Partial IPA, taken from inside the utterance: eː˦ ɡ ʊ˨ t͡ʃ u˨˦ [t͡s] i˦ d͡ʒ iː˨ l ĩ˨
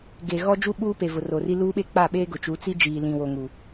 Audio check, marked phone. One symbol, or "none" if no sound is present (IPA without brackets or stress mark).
t͡s